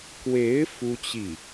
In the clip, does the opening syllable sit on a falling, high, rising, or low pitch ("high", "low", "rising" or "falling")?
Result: rising